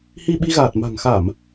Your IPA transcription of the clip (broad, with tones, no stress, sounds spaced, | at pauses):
h i˧ ɓ i˧ ɣ aː˨˩ t̚ m a̤˨˩ ŋ x a˧˩˨ m